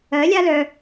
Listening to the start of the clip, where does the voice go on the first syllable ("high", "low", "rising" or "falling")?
rising